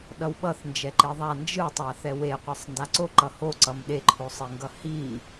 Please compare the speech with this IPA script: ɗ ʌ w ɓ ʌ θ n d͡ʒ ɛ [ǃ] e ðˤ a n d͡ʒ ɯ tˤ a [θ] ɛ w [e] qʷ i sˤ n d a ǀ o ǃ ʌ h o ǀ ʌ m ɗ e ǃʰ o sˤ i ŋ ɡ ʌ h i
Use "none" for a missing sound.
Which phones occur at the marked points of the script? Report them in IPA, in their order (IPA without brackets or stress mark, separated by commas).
ǃ, θ, e